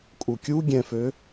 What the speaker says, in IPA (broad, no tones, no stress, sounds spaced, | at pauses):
kʼ u kʲ u ɡʲ ɛ̃ f ø